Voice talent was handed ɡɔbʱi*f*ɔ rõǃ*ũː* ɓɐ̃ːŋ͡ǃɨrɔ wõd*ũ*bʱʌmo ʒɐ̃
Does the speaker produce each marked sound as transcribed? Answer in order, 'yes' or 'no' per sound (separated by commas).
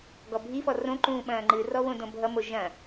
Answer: yes, yes, no